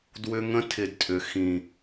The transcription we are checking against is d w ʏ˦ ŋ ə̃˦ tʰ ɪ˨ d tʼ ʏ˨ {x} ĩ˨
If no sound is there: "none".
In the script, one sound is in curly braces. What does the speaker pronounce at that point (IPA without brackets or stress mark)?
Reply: x